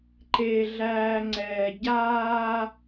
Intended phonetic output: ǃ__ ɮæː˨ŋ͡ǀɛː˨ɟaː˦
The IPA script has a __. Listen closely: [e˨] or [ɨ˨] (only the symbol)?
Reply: e˨